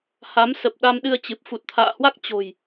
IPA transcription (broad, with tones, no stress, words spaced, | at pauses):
ha˨˦msə˨˩p̚ ɗa˧mɗɨ˧ə̯t͡ɕɨ˨˩p̚ fu˨˩t̚t̪ʰa̰ː˧˨hwa˦˥k̚ t͡ɕo̤˨˩j